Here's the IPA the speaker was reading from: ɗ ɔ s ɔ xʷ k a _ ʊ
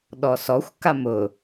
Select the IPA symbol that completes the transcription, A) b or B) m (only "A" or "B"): B